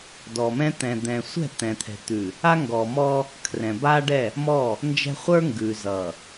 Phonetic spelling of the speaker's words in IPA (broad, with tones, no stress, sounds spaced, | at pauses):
d ɔ˨ m ɛ̃˦ t̪ ɛ̃˨ d̪ ɛ̃˨ sʷ ɛ̤˦˨ t̪ ɛ̃˨ t̪ʰ ɛ̤˨ t̪ ʉ˨ | a˦ ŋ ɡ ɔ˨ m ɔ˦ | kʰ r ɛ̃˨ b aː˦ ɖ ɛ˦˨ | m ɔ˦˨ | n d͡ʒ ɛ̤˦ χʷ ə˞˦ ŋ ɡ ʉː˨ z ʌ˨